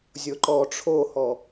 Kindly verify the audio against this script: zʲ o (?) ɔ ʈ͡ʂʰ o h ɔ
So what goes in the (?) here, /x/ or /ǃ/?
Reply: ǃ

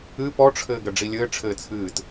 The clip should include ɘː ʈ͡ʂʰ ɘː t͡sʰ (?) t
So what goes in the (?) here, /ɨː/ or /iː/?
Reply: ɨː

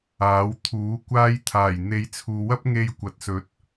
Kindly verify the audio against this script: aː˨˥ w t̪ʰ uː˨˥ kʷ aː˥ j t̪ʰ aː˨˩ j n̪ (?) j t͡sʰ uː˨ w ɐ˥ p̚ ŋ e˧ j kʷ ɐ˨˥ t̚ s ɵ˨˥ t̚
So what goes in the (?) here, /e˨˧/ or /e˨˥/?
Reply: e˨˧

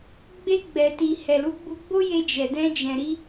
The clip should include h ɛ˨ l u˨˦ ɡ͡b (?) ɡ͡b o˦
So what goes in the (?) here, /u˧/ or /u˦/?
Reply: u˧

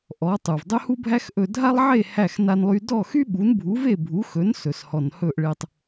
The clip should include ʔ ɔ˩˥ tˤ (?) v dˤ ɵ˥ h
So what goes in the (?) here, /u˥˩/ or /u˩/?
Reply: u˩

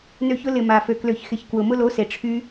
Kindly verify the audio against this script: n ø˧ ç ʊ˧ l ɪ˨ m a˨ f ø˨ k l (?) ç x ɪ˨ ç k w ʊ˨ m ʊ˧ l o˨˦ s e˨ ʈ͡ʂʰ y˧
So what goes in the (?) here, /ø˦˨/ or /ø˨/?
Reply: ø˨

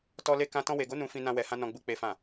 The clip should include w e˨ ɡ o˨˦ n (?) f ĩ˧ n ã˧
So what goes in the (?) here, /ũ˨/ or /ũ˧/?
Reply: ũ˧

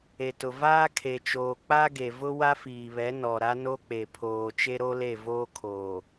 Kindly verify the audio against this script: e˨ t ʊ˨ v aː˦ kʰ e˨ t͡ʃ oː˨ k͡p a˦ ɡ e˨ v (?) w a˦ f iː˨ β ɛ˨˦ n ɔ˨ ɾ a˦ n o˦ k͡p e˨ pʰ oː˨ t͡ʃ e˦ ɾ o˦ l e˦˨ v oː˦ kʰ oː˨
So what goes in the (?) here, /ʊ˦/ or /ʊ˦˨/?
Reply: ʊ˦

